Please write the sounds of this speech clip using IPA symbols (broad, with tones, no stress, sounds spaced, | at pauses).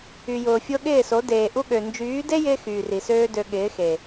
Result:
y˨ j ʊː˨ fʲ o˦ ɠ ɪː˦˨ s o˨˦ d eː˨ ʔ u˦ ɠ ø˨ n d͡ʒ yː˨˦ d e˦ j ɪː˧ x yː˨ r i˨ s øː˦ d ø˧ ɠ ɪː˨˦ x e˨